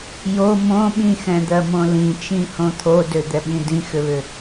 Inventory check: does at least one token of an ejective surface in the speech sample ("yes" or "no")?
no